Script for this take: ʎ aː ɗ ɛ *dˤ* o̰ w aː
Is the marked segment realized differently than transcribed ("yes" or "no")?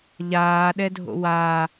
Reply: yes